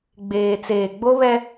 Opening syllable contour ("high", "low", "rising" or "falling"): low